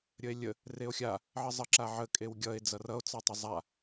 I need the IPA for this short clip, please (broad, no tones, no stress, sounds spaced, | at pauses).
ɾʲ ə e̯ lʲ ə | r e o̯ xʲ a | ʕ ə zˤ ə ǁ a ʕ ə kʼ e w ɡʲ ʌ e̯ d͡z ʌ r ʌ o̯ t͡s ɑ tˤ ə zˤ a